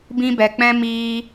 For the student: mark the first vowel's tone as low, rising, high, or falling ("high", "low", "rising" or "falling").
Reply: high